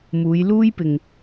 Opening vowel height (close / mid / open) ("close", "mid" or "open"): close